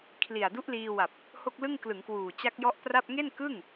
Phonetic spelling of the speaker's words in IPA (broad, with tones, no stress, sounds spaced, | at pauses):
kʰ l i˨˩ a̯ d u˦˥ ʔ l iː˧ w a˨˩ p̚ | h o˥˩ k̚ l ɯ˥˩ ŋ k l ɯ˩˦ ŋ k w uː˨˩ t͡ɕ a˦˥ k̚ j ɔ˦˥ ʔ p r a˥˩ p̚ ŋ e˥˩ n k ɯ˥˩ ŋ